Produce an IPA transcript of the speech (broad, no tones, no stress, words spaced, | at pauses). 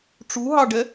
ʈ͡ʂuɦɑɖɛ